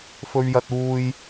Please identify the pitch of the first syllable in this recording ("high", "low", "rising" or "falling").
high